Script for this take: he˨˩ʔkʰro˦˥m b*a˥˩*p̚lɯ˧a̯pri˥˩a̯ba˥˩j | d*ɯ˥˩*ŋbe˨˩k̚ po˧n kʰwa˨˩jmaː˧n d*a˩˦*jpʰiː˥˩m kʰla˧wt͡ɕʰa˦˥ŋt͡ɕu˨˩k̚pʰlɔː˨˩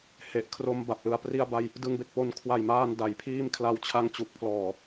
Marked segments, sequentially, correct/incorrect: incorrect, incorrect, correct

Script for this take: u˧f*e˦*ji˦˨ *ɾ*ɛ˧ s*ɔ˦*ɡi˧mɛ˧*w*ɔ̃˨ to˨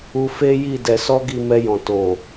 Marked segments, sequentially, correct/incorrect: correct, incorrect, correct, incorrect

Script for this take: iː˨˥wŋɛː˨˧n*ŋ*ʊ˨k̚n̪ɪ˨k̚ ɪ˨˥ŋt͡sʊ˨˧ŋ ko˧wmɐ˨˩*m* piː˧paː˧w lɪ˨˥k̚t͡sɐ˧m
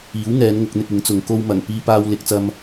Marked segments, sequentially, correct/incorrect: correct, incorrect

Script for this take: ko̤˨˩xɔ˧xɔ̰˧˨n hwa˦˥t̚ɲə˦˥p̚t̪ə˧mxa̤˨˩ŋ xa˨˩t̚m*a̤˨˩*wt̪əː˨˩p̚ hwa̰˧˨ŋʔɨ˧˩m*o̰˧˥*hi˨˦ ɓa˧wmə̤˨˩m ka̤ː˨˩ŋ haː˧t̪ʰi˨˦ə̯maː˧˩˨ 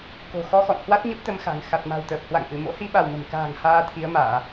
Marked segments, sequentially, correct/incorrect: correct, correct

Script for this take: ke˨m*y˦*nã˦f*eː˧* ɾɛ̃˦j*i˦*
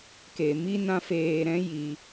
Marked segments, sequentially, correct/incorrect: incorrect, correct, incorrect

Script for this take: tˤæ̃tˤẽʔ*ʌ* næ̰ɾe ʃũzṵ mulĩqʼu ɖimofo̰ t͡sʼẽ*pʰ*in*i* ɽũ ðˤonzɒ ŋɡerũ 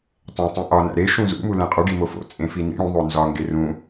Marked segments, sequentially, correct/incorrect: incorrect, incorrect, incorrect

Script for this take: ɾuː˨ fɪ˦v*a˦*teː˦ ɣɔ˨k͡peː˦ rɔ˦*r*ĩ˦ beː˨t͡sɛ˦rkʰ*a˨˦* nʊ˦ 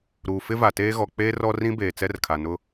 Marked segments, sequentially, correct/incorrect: incorrect, correct, incorrect

